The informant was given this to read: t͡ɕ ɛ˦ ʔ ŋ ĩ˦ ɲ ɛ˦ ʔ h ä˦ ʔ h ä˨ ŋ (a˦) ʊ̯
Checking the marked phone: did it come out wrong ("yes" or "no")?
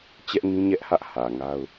no